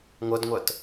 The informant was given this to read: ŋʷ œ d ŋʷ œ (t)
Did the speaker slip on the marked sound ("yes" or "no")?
no